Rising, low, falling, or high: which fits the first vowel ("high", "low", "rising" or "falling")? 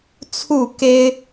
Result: falling